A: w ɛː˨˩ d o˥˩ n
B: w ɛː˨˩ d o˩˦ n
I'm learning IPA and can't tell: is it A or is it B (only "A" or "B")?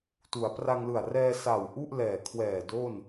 A